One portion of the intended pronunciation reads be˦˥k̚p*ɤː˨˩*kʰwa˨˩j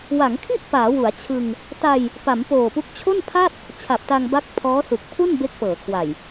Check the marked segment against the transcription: incorrect: ɤː˩˦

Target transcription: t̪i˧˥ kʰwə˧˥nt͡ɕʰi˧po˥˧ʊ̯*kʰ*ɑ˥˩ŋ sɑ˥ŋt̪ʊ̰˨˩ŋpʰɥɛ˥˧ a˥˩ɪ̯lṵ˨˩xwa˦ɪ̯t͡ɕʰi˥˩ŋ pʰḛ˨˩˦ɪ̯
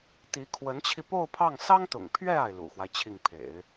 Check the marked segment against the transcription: incorrect: pʰ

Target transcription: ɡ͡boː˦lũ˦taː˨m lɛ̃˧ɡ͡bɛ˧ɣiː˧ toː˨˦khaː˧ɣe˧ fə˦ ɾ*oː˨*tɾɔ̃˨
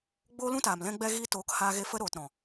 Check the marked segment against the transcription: correct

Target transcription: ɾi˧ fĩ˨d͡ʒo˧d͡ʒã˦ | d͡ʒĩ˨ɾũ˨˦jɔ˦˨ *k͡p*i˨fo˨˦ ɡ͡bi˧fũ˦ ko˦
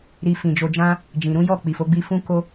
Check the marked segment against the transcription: correct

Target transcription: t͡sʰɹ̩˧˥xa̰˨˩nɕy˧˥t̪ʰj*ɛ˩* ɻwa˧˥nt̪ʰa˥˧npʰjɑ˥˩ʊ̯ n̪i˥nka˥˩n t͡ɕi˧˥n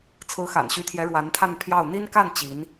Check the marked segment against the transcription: incorrect: ɛ˧˥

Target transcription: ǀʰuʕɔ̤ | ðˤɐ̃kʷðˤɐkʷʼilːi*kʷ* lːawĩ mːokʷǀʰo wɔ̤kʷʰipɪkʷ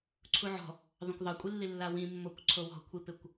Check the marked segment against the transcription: incorrect: none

